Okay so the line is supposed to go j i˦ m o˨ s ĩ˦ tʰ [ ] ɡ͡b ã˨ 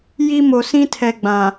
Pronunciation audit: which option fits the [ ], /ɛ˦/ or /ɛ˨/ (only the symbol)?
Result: ɛ˨